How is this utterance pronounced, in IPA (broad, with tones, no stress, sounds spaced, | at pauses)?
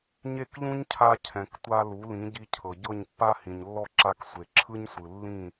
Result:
ɲ e˥˩ k ʎ ũ˥ ɲ cʰ a˧ cʰ ɛ̃˩ k tʷ a˧ l u˩˥ l ĩ˩˥ ɟ i˧ cʰ ɤ˩ ɟ ɤ˥˩ ɲ pː a˥ h ĩ˩ ɲ lː ɔ˥˩ ǁ a˧ k sʷ e˩ ǁʰ ɯ˥ ɲ sʷ ɯ˩ lː ĩ˥˩